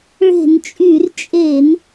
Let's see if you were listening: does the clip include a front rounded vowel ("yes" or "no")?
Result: yes